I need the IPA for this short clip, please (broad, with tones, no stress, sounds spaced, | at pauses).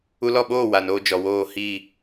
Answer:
u˧ l ɔ˦˨ ɓ oː˦˨ w a˨ n oː˧ d͡ʒ ɔ˨ w oː˦˨ h i˦˨